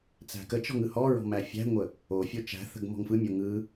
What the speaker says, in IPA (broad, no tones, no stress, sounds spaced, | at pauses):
t͡s æ̤ k ə t͡ʃ ɔ̤ ŋ ɯ h ɔ ɹ ɔ̤ m æ fʲ æ̤ ŋʷ ə | o fʲ o t͡ʃ æ̤ θ ə̤ ɡ m ɔ̤ ŋ f ɯ mʲ o ŋ ɯ